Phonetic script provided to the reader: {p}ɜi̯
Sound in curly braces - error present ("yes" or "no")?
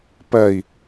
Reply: no